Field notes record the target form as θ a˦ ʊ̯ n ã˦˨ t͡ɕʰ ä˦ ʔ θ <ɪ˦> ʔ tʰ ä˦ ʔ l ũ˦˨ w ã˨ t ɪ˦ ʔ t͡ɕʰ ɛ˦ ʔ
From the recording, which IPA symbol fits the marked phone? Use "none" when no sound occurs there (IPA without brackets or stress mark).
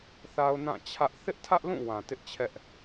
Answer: ɪ˦